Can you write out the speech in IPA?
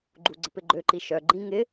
ɡ͡ǃ u ɡ͡ǀ ə p ɪ ɡ͡ǃ ø ǃ i ʃ œ ɡ͡ǃ ĩ ŋ ɪ

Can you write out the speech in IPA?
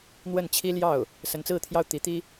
n̪ w ə˥˩ n t͡ɕʰ i˥ l j ɑ˥˩ ʊ̯ | s ə˧˥ n t͡s ɹ̩˥˧ t̪ʰ j ɑ˥˩ ʊ̯ t̪ i˧˥ t̪ i˥

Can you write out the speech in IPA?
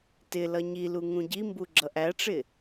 t ɪ l ʌ ɲ i l u ŋ ũ ɟ i m b u ɡ͡ǁ ʌ ʔ æ ʈ͡ʂ ɪ

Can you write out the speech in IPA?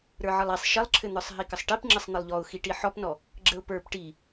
ɾ ə˞ ʕ ə lˠ i sˤ ʃ ɘ lˠ ǁʰ ɘ n̪ ə˞ sˤ ɦ i k ə sˤ ʈ i p ŋ͡ǁ ɘ sˤ n̪ ɘ lˠ ʎ ɔ ʊ̯ x i ʈ i ħ ɔ p n ɔ | ɡ͡ǁ ə ʊ̯ p ə˞ p ʈ i

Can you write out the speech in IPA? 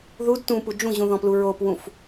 ð u d t ũ p u d͡ʒ ũ ʑ ũ ð ɔ̃ p l u ɹ o p w ũ f

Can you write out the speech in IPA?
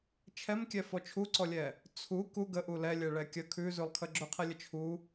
t͡ʃʰ ɛ m kʲ ɛ f ɔ t͡ʃʰ u ǀ ɔ lʲ ɛ | t͡sʰ u k u ɡ ə ʔ u l ɛ lʲ ɛ ɭ ɛ kʲ ə kʰ ʉ z ʉ lˠ kʰ ə ɡ͡ǁ ø qʰ ɛ lʲ ə t͡ʃʰ u

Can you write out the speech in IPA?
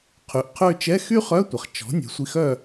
qʰ y˩˥ ʔ qʰ ø˦˨ t͡ʃ ɛ˧˥˧ x y˥ χ œ˧˥˧ tʷ ɐ˩ χ t͡ʃ ɔ̤˩˥ nʲ ɛ̤˩˥ sʷ i˦˨ x œ˦˨

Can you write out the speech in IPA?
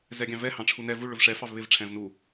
z ɛ ɡʲ ɑ̃ v ɛ h ɑ̃ ʈ͡ʂʰ u n ɛ v u ɭ ʊ v ʂ ɛ f ɑ v β ɪ v ʈ͡ʂʰ ɛ̃ v n u

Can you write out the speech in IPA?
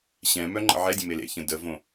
ɕ ɛ̃ m œ ŋ͡ǃ ə̰ ʕ ɛ dʲ ə̃ m e l ḛ ç ə̃ d ə v õ

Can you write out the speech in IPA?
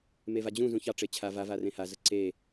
m e v a d͡ʑ ũ z ũ ç ɑ ʈ͡ʂ e t͡ɕʰ a v a v a r ẽ h a z ə ǀ e

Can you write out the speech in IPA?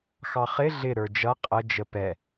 x ɑ χ ɪ ɮ ɪ ɾ ə˞ d͡ʒ ʌ qʼ ə d͡ʒ ə p ɛ

